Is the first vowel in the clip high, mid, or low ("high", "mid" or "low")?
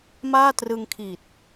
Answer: low